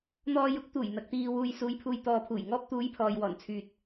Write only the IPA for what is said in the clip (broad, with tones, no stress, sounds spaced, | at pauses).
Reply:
n̪ ɔː˧ j ʊ˨˥ k̚ t̪ uː˨˩ j n̪ ɐ˨ k̚ t̪ iː˧ w uː˧ j s uː˨˧ j pʰ uː˨ j t̪ ɔː˨ pʰ uː˨˩ j ŋ ɔː˧ p̚ t̪ uː˨˧ j pʰ ɔː˨ j w ɔː˨˩ n t͡sʰ yː˨ t̚